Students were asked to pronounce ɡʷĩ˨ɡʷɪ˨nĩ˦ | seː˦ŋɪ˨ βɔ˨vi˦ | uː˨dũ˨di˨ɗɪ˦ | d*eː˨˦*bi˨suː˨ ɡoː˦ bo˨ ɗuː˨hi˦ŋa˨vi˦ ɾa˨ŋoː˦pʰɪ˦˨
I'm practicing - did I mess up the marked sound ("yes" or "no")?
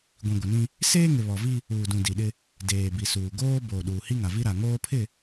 yes